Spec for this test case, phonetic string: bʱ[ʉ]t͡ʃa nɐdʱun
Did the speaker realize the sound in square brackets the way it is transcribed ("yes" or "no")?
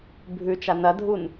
yes